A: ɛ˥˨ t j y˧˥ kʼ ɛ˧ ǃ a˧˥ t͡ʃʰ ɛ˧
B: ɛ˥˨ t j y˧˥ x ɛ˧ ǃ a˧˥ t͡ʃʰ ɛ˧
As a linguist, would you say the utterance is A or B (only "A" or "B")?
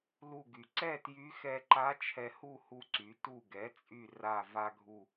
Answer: B